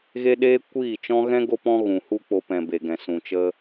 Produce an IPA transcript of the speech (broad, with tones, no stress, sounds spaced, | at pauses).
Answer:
ɣ e˦ ɗ eː˦ kʷ iː˦˨ t͡ʃ ɔ̃˦ ɣ ɛ̃˦ ɡ o˦ p ɔ̃˦ ɣ ũ˨ h u˦ k͡p o˧ p ɛ̃˨ b e˨ ɡ ɛ̃˨ s ũ˨ t͡ʃ ə˦